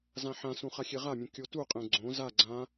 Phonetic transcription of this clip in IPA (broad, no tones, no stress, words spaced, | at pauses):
zãħãsũ χaxʲeʁamʲũ kʲotuqʼẽ ɡ͡ǀõ za ɡ͡ǀã